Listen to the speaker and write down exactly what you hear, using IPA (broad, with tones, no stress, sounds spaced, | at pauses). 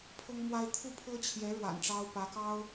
pʰ ɤ˥ ŋ m w a˥ ɪ̯ t̪ʰ u˥˩ pʰ ɤ˥ t͡ɕʰ j ɛ˧˥ ɻ w a̰˨˩ n ʈ͡ʂ ɑ˥ ʊ̯ p ä˧˥ k ɑ˥ ʊ̯